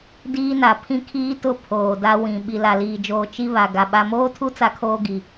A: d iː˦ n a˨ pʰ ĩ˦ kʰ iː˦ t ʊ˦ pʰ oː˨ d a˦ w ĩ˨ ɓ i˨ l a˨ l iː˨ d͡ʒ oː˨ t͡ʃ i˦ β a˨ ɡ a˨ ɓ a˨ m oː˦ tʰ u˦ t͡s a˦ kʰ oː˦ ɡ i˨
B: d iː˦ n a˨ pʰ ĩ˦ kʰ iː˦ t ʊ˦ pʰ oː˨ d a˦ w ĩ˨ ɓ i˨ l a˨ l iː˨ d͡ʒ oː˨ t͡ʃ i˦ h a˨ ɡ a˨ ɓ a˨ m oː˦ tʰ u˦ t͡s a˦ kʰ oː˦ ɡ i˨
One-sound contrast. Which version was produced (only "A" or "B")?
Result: A